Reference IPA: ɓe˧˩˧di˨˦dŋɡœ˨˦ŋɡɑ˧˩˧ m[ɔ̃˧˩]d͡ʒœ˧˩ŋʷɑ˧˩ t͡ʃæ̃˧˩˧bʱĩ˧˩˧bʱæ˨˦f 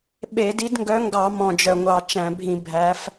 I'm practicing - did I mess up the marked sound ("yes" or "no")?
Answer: no